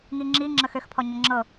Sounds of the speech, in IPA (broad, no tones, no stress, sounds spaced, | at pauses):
ŋ i ŋ͡ǁ i ŋ͡ǁ ə x ø x pʰ ɔ ɲ ə ŋ͡ǁ ɤ